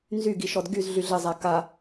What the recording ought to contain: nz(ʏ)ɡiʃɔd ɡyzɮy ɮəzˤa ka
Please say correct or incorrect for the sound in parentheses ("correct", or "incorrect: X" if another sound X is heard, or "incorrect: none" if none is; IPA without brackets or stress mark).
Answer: incorrect: y